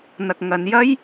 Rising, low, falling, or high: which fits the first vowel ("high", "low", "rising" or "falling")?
low